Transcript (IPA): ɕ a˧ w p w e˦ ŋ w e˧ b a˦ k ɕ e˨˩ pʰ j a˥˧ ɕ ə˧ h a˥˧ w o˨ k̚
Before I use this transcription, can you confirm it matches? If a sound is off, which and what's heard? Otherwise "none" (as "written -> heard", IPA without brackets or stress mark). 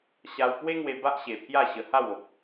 k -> ʔ